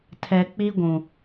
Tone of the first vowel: low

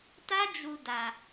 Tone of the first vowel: high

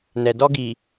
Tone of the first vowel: low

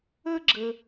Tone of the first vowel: high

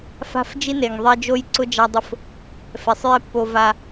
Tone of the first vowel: high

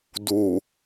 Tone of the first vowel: low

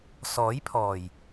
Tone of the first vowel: rising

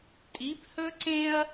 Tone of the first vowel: rising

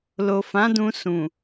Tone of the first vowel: low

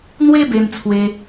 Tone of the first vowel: high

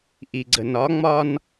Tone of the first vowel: low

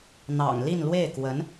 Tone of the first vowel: low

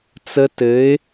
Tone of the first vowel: low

